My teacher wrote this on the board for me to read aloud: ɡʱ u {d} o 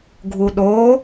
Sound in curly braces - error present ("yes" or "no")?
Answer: yes